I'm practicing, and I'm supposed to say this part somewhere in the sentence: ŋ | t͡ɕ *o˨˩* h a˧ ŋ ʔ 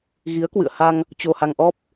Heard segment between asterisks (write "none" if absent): o˧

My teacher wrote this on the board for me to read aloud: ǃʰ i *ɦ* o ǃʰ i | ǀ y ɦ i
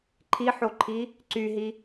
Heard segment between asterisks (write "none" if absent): ħ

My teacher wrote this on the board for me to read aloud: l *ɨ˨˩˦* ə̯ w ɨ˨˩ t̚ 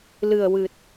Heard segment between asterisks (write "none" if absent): ɨ˨˩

